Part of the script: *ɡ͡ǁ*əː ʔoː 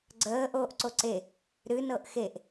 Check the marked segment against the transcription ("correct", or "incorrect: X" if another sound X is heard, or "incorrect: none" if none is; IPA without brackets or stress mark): incorrect: ɡ͡ǀ